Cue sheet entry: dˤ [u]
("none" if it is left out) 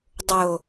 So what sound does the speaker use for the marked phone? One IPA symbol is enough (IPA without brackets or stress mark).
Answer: o